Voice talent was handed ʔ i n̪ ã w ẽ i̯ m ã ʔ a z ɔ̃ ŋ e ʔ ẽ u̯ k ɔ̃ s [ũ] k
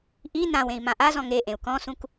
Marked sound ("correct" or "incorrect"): correct